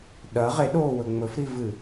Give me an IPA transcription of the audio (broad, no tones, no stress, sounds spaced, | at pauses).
ɗ ɐ ʁ e ɗ oː w ɵ ŋ͡m ɵ f ɾ i v ɨ